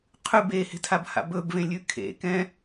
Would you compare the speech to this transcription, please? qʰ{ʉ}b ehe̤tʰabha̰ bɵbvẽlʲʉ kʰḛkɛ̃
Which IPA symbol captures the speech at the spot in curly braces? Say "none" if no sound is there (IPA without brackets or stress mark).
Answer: ʉ